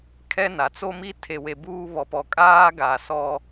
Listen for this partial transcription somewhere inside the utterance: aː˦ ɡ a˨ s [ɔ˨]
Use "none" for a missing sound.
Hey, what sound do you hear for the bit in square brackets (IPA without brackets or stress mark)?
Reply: ɔ˦